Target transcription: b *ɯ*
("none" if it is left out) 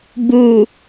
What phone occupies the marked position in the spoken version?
u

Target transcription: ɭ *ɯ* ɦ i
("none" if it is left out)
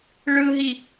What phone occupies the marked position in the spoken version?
ɯ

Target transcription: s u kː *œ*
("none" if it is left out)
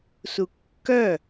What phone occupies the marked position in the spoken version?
œ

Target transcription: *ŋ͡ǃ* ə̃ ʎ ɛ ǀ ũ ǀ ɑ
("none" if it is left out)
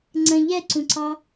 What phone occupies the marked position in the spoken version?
ŋ͡ǀ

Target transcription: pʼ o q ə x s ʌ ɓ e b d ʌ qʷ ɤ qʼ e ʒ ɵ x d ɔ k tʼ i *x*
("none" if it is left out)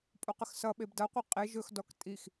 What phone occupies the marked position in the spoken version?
x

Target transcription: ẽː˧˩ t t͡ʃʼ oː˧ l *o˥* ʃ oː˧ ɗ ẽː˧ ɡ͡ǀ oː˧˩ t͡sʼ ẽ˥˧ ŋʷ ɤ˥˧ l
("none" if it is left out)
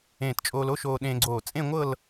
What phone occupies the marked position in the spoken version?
o˥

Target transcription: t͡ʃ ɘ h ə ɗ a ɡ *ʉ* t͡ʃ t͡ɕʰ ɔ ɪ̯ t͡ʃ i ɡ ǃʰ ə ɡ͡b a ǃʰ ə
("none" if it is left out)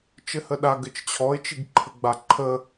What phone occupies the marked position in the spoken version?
ɘ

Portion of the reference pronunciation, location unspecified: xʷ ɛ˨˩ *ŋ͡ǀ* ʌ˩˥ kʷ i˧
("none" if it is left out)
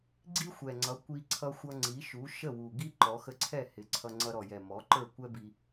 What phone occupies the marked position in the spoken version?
ŋ͡ǀ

